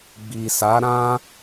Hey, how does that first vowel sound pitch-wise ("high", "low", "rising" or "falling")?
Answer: low